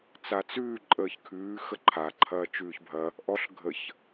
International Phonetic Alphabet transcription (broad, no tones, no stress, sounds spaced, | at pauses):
t͡s a t͡s ʉː ǃʼ əː ç kʰ ʉː x ə ǃʰ a ǃʰ ɐː t͡ʃ ʉː ç bʱ ɐ | ʔ ɔ ɬ ɡʱ ə ç